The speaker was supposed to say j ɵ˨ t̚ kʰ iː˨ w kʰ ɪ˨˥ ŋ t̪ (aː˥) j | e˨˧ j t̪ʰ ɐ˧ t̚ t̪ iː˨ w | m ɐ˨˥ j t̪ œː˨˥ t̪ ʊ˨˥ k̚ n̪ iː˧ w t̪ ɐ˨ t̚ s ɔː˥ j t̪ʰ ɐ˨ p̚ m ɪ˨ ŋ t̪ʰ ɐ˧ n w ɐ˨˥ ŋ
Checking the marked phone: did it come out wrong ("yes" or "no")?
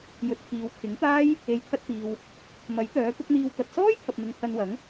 no